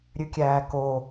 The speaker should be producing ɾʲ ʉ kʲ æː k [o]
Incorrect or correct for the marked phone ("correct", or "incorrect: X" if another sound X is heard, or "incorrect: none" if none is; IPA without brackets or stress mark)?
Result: correct